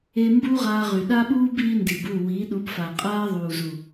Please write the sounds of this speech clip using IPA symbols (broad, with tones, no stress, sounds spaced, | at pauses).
e˦ m b uː˦ ʁ aː˧ ʁ y˨ ɗ a˦ ɓ uː˦ b iː˦ n d i˨ b u˦˨ w iː˨˦ ɗ u˨˦ b f a˨ qʼ aː˦ ðˤ uː˨ z u˨